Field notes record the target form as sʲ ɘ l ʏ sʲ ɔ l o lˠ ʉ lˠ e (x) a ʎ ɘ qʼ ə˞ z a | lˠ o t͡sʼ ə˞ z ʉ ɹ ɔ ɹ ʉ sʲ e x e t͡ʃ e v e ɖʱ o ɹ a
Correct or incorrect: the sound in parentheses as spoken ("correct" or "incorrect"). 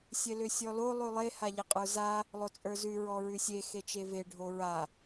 incorrect